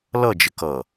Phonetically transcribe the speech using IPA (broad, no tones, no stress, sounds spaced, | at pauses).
l ʌ d͡ʒ ɪ k ʌ